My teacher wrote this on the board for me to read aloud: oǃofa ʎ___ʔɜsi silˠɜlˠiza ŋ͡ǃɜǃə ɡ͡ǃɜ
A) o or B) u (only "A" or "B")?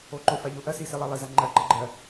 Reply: A